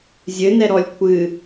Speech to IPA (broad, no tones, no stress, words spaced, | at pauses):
zʲɘnɛɾɔlʲ kʷʰɨ